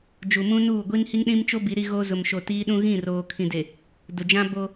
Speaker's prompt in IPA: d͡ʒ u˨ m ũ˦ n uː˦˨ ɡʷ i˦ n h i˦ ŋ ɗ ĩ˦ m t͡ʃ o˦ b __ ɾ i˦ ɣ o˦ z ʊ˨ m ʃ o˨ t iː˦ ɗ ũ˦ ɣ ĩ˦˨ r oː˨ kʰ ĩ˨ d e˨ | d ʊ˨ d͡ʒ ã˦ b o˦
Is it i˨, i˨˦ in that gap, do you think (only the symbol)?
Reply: i˨˦